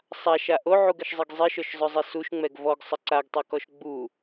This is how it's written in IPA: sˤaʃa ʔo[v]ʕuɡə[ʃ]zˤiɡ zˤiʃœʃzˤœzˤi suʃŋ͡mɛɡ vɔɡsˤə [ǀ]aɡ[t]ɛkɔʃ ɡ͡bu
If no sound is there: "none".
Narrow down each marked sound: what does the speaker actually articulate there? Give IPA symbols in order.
none, ʃ, ǀ, tˤ

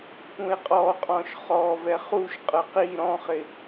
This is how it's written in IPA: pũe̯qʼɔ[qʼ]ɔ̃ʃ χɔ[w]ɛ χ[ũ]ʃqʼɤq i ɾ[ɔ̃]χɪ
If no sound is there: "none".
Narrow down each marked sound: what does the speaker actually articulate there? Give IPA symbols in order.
qʼ, v, u, ɔ̃

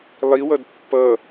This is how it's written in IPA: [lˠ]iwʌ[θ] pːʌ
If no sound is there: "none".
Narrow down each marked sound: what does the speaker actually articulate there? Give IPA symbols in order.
lˠ, d

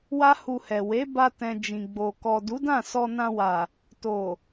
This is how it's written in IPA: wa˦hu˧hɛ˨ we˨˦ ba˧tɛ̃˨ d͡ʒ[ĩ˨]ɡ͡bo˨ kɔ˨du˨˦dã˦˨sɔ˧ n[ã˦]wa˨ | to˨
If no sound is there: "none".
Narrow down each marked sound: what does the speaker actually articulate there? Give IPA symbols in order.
ĩ˨, ã˧

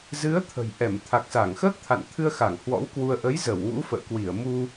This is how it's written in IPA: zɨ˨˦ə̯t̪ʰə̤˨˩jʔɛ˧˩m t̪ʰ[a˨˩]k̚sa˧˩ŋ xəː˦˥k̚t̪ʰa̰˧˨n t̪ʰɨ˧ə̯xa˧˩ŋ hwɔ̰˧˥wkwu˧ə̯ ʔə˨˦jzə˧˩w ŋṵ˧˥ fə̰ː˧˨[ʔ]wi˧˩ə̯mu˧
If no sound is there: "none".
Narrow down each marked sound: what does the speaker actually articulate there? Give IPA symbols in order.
a˨˩, k

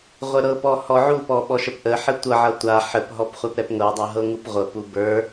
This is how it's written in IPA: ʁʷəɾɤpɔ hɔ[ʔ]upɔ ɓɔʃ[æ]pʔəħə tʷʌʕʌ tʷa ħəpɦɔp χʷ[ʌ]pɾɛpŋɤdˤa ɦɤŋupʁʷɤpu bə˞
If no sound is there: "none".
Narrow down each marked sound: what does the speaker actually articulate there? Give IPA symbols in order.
ʕ, ə, a

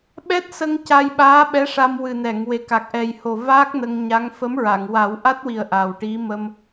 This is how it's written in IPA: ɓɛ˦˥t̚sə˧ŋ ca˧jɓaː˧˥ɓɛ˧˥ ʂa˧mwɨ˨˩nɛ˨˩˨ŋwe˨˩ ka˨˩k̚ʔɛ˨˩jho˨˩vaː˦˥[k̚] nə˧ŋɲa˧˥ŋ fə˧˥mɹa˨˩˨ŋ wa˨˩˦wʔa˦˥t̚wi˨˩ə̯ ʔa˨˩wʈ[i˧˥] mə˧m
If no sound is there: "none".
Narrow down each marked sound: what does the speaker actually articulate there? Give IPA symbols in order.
k̚, i˧˥

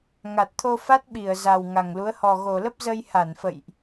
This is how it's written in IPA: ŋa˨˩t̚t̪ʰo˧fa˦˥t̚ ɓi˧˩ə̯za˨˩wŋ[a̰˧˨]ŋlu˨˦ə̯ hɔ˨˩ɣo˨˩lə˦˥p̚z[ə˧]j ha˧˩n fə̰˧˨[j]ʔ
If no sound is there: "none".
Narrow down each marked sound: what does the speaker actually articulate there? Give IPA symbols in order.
a˨˩, ə˧, j

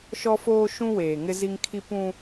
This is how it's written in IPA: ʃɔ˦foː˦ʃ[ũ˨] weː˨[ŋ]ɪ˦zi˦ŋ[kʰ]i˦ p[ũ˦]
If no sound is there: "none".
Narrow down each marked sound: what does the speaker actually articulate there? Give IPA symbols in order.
ũ˦, ŋ, kʰ, ũ˦

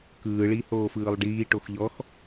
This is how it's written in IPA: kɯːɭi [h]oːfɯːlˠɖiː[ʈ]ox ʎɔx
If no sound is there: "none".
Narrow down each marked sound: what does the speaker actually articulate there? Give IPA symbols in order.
h, ʈ

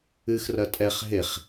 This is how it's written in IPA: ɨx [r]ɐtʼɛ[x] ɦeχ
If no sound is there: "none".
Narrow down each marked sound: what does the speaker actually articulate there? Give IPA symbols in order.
r, χ

